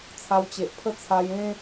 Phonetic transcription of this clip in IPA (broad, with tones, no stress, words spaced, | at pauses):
t͡sʰa˧wt͡ɕe˨ʔpʰə˥˧ t͡sʰa˧jẽ˦